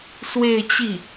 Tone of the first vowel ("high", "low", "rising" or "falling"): falling